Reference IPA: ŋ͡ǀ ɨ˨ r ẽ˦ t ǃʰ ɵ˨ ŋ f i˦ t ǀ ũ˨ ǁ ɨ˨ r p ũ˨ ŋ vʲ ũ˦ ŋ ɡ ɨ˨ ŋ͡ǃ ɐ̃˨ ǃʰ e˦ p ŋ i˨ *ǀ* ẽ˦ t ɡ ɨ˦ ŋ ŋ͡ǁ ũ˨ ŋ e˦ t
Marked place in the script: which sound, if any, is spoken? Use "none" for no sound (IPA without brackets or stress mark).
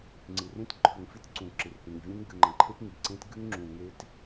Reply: ǀ